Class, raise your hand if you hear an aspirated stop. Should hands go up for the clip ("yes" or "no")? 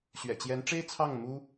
yes